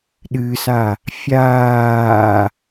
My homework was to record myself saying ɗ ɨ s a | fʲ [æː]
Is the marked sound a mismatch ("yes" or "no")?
yes